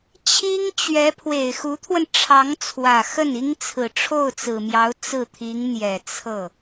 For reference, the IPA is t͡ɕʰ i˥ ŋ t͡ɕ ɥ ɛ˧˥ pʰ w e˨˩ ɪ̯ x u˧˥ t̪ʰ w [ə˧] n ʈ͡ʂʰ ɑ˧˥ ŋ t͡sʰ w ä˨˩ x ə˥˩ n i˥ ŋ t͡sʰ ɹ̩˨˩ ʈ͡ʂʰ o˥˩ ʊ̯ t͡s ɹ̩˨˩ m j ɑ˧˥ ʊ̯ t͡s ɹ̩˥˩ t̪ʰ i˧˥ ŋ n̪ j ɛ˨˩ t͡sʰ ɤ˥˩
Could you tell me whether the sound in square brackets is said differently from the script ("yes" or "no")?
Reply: no